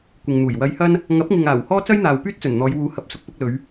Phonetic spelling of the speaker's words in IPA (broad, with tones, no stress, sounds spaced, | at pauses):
kʷ ɪ˨ ŋ n̪ uː˨˩ j w ɐ˨˧ j h ɐ˧ n | ŋ ɐ˨˥ p̚ ŋ ɪ˨ ŋ aː˨˩ w h ɔː˥ t͡s ɐ˥ j n̪ aː˨ w p yː˥ t̚ t͡s ɵ˨˩ n n̪ ɔː˨˧ j w uː˨˧ h ɐ˨˥ p̚ s ʊ˧ k̚ f ʊ˧ k̚ l ɵ˨˧ ɥ